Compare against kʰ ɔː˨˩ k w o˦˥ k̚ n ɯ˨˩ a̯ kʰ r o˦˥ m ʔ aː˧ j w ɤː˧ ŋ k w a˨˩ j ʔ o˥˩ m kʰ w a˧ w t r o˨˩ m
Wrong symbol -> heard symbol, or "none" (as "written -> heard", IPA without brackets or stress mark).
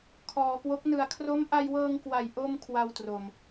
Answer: aː˧ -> a˧